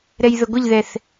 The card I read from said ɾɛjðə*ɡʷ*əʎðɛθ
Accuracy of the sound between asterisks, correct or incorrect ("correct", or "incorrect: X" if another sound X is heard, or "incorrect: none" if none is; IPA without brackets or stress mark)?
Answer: correct